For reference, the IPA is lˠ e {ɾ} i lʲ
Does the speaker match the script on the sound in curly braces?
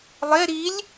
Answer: yes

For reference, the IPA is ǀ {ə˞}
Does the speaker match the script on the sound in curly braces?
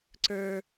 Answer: yes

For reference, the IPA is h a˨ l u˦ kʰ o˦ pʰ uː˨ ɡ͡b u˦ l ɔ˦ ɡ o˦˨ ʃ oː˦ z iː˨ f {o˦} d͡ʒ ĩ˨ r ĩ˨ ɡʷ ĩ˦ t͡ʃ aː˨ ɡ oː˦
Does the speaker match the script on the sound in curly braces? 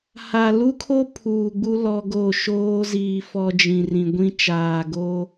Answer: no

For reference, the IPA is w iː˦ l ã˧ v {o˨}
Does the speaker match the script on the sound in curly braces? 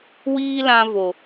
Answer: yes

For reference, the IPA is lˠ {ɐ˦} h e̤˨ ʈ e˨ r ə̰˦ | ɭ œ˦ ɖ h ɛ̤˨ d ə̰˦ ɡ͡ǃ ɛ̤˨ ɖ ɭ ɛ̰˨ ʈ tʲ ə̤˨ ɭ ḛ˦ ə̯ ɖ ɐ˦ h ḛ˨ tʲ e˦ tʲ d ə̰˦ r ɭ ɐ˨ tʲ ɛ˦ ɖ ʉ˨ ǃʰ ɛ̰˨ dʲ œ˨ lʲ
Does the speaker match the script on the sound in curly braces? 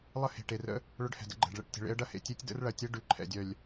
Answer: no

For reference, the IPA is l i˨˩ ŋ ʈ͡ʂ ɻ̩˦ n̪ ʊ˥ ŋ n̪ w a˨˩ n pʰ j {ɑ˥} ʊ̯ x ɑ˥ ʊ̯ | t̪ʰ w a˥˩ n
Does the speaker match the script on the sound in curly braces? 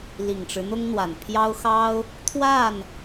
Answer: yes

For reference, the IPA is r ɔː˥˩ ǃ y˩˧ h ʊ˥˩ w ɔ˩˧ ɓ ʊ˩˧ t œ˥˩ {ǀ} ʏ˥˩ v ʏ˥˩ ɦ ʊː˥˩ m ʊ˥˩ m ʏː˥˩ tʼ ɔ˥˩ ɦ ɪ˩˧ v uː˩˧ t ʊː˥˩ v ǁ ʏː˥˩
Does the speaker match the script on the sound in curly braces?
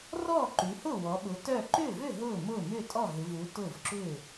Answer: no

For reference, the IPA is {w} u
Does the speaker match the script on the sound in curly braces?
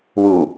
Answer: yes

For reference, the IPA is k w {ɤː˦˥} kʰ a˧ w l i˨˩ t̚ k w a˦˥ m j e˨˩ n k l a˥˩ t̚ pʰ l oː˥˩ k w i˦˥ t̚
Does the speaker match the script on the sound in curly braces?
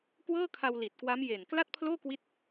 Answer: no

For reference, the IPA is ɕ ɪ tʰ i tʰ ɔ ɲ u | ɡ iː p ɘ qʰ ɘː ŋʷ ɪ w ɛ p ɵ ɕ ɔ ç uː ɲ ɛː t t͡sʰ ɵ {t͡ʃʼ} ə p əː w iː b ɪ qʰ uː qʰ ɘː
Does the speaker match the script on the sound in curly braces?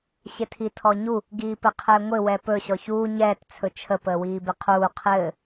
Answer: no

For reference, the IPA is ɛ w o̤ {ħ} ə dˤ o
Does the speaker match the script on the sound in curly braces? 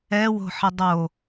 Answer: yes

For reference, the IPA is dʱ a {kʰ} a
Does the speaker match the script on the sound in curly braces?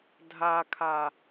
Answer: yes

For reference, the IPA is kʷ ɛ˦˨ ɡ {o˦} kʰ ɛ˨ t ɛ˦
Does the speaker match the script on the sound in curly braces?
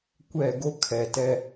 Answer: yes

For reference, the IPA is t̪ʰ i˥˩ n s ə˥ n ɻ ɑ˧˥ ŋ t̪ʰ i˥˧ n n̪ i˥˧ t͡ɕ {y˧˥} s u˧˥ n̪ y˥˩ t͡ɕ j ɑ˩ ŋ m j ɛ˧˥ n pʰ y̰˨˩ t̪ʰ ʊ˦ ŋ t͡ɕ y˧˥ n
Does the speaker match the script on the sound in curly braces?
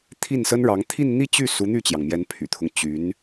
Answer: no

